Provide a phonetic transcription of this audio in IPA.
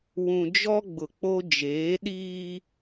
wũ˨d͡ʒɔ˦ ɡ͡bʊ˨k͡po˦ d͡ʒeː˨˦ɗiː˦

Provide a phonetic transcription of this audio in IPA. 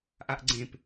ʔaʔɡ͡ǀẽp

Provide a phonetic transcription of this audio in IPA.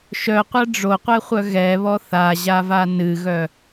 ʃœqʷa ɖ͡ʐoqʷɛχʷœ ɣɛβɔ θaʑava nɨɣœ

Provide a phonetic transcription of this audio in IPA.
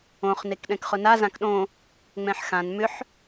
õχ nekɗɛ̃kχʊna zãkɗõ | ŋ͡mɛ̃ħxãn mʏħ

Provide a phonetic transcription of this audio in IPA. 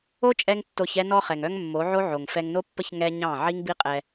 o˦t͡ʃʼɛ˧ŋ tːo˧ç ɛ˧nɔ˧χɛ˨ŋœ˧ŋ mːo˨˦ʕo˦ ʕo˨ŋfɛ˧ŋ no˦pːə˦ç ŋɛ˧ ɲɑ̃˦˨ ʕi˦ŋbi˦qʼɛ˧

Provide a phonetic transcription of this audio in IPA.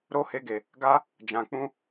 ɾo˦ he˦ɡe˧ | ɡa˦ | d͡ʒã˧k͡pũ˦

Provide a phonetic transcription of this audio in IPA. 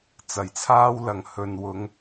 t͡sɐ˨˩jt͡sʰaː˥wlɐ˨ŋ hɵ˨nwʊ˨˧ŋ

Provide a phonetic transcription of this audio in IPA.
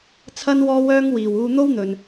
t͡sʰɐ˥n wɔː˥wœː˥ŋwiː˨w uː˧n̪o˥wn̪ɵ˨n

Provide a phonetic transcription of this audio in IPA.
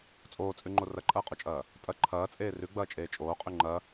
t͡sʼoːt͡sʼʉŋ͡ǃo rɐǃʼɐːqʼot͡ʃʼɐː | tʼɐ ǃʰɐːt͡sʼeː rʉɡ͡bɐːt͡ʃʼeː t͡ʃʼoːqʼʉ ŋ͡ǃɐ

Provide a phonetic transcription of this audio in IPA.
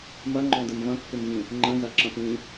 mɐŋ͡ǃɔ̃dəm vɐ̃kːɪmvĩ | ŋ͡ǃə̃zɐǁɐ̃p ĩ

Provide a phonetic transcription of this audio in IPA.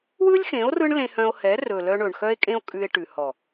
wɯ˦lʲxẽ˨˦o̯ rɯ˦ɳlẽ˧hœ̃˧o̯hɛ˨˦ rɵ˨lœ˧ɳɵ˨ɳ xœ˦e̯kʼẽ˦o̯ kʼʉ˧e̯ ʈʉ˨ hɔ˨

